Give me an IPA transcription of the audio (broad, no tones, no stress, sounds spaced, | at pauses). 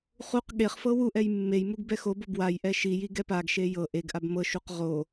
χ u q ɠ e χ f ɤ w u ʔ ɛ j mː e j m u ɡ b ɛ x o b o b w a j ʔ ɛ ʃ i j i ɡ ɛ p a ɡ ʃ e j ɤ ʔ e ɡ ʔ a b m ɤ ʃ u q ʁ o